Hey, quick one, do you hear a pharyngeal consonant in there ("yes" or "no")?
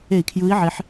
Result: yes